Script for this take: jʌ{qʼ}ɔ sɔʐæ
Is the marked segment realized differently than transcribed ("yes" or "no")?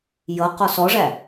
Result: yes